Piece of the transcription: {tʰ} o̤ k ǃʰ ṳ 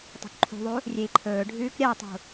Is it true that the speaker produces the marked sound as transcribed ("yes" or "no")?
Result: no